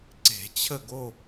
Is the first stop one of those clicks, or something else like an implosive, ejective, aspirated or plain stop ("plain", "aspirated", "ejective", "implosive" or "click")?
click